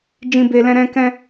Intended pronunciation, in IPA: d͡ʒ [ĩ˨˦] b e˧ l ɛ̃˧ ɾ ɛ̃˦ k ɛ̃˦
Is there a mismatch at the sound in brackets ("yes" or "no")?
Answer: yes